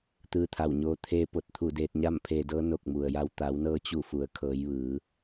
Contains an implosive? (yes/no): no